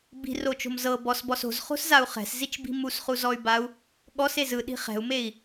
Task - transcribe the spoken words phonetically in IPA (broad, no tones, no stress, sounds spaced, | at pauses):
b i̤ r o t͡ʃ o̤ m z ɤ b ɔ s b ɔ s o̤ z χ o̤ s z a u̯ χ ɛ̤ s z i t͡ʃ b i̤ m u s χ u z ɔ y̯ b a u̯ | ɠ ɔ s e z ɯ ɗ i̤ χ ɛ̤ u̯ m e i̯